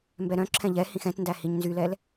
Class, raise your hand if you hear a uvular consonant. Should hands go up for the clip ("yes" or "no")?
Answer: no